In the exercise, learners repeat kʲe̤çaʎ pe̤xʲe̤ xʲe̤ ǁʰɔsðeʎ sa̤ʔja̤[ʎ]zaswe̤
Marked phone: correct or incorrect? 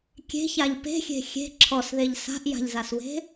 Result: correct